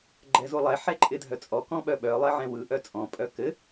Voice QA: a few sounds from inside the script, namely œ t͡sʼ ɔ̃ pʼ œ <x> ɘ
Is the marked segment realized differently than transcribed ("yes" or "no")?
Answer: yes